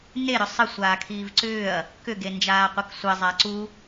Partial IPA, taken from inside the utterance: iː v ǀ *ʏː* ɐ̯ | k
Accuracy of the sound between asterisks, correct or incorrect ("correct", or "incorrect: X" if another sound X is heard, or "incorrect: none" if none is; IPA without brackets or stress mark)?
correct